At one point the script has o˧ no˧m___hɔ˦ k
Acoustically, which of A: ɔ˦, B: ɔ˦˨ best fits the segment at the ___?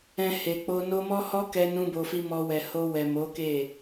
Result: A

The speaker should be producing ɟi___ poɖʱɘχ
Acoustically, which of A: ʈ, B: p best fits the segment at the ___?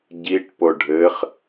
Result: A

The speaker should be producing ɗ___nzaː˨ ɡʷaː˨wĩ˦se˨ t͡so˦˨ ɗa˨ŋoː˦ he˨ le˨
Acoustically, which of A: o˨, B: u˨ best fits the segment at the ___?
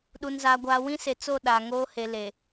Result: B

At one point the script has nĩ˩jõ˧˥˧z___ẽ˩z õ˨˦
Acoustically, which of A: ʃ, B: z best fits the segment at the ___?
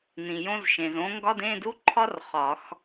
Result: A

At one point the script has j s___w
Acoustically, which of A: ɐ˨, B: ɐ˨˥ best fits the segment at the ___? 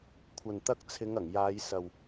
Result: A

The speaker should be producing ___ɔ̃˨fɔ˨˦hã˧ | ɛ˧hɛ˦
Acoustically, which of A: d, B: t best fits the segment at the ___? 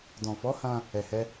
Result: A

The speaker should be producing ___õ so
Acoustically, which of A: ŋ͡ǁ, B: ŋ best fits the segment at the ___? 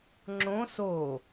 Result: A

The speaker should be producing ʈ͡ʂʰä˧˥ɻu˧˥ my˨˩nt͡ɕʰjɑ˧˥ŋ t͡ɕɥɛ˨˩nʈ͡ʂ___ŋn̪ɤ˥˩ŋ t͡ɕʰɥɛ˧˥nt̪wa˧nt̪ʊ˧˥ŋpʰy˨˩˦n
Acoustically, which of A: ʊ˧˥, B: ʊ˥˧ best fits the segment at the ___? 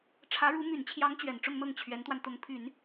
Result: B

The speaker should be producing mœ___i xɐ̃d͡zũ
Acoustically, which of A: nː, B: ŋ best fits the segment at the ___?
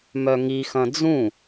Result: B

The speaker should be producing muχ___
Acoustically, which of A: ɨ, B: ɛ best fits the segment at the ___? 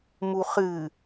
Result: A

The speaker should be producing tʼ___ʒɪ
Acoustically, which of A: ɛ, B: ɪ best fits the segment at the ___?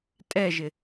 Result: A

